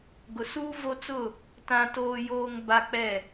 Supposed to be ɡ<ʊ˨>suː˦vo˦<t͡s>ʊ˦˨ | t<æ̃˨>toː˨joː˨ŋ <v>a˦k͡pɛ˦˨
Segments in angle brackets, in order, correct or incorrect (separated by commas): correct, correct, incorrect, incorrect